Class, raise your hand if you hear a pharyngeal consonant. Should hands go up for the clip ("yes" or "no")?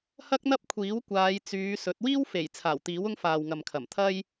no